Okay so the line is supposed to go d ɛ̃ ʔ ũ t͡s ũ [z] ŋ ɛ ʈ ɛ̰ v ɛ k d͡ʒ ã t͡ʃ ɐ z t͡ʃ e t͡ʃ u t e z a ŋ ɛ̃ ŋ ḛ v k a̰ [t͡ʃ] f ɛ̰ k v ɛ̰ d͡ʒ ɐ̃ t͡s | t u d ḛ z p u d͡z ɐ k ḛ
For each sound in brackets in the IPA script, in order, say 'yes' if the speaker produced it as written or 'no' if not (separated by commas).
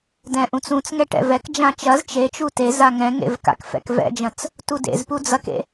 no, no